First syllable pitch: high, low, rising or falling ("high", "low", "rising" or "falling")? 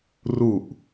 low